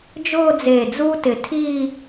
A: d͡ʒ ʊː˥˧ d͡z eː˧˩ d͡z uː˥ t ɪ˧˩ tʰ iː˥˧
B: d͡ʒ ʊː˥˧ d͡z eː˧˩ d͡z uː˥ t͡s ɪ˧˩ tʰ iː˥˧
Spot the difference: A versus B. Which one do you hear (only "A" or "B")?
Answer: A